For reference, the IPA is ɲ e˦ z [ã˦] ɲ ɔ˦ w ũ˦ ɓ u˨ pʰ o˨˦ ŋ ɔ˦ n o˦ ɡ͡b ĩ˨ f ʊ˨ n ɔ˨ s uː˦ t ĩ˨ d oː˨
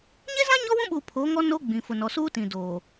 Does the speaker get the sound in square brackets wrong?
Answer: no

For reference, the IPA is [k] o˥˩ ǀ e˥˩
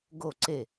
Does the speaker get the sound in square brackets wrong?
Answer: yes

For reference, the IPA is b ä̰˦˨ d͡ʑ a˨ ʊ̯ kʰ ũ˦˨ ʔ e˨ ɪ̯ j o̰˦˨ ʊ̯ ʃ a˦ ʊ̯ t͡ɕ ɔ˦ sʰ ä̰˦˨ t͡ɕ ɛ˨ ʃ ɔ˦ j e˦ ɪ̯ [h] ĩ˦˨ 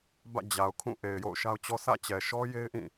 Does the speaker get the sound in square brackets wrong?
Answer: yes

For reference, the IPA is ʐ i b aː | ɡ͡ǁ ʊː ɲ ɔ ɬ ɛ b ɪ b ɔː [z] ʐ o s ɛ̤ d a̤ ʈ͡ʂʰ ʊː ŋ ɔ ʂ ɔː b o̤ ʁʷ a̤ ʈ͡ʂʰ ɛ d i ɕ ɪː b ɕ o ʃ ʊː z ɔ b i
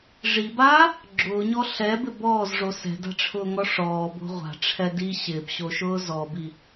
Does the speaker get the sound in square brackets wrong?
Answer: no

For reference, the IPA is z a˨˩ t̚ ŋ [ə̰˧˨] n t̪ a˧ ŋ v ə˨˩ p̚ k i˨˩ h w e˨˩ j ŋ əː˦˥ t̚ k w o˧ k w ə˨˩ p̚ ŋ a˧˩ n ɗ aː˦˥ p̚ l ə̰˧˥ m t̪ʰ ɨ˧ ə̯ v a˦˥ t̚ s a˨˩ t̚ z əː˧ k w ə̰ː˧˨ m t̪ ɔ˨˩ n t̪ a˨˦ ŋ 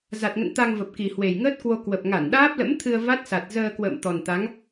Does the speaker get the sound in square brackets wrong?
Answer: no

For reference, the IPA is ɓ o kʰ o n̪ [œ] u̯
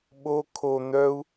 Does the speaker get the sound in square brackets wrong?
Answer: no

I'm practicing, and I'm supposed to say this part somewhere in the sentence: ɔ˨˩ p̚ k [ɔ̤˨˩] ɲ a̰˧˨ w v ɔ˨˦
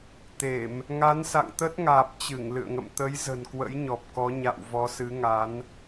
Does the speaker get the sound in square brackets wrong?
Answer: yes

